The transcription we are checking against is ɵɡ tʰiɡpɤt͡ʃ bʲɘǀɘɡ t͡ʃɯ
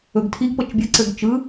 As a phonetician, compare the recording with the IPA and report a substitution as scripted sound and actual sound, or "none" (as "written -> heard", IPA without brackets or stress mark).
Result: none